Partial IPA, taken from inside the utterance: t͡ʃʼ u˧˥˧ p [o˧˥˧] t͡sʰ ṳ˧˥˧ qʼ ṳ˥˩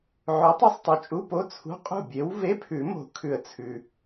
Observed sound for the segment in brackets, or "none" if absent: o˧˥˧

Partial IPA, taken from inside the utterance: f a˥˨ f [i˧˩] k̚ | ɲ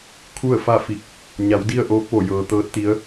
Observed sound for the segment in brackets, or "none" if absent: i˧˩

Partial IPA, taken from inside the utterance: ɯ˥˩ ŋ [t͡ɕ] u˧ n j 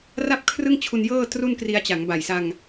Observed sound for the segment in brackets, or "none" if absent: t͡ɕʰ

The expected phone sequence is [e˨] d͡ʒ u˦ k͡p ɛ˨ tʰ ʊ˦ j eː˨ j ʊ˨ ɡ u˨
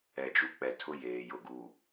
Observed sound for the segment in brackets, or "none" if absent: ɛ˨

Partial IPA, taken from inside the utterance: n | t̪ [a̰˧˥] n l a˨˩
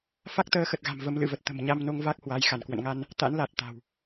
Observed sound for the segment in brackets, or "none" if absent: a̰˧˥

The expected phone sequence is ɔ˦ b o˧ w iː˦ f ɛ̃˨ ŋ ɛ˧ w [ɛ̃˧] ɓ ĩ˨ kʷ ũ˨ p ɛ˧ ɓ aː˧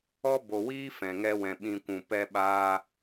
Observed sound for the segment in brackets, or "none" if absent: ɛ̃˨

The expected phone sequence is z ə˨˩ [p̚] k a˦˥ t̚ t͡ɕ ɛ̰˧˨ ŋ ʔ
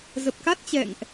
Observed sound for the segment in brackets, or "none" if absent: p̚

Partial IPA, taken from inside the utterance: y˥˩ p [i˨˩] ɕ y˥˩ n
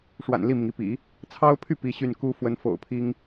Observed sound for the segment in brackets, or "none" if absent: i˥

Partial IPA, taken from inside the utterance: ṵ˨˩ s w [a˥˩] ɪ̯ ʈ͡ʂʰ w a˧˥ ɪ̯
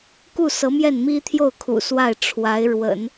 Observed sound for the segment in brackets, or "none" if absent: a˥˩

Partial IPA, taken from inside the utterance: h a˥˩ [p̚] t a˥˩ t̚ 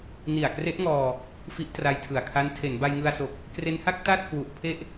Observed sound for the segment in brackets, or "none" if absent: k̚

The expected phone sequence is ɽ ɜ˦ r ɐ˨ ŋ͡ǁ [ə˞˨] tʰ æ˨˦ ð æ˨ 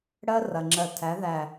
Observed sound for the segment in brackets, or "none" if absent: ɜ˨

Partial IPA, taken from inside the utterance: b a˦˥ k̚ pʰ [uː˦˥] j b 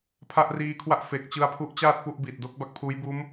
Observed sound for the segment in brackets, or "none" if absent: uː˦˥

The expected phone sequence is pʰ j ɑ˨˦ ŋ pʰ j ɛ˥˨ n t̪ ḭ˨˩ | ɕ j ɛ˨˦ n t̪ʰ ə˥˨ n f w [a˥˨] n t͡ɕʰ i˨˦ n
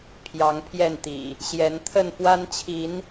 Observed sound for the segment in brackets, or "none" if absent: a˦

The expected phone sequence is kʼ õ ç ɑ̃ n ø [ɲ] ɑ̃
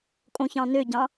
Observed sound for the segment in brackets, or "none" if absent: ɟ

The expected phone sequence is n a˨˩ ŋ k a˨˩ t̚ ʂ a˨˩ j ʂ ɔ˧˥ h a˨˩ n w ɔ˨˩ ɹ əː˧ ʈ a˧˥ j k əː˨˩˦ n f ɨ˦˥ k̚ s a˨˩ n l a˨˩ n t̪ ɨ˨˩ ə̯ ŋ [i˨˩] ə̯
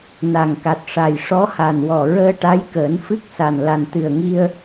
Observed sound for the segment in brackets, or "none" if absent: i˧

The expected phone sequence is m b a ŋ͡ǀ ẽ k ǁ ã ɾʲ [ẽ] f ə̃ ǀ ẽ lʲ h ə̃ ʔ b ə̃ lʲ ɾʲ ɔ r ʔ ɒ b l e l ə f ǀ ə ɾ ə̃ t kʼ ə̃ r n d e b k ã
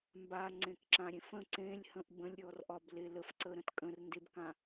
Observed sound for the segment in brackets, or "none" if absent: ẽ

